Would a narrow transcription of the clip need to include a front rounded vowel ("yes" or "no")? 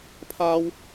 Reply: no